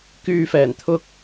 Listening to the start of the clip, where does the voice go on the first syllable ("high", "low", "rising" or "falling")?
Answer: low